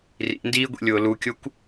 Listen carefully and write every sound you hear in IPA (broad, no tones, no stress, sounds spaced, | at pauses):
r ḭ n d iː ɡʷ ḭ lʲ ʊː l u kʲ ʊ kʷ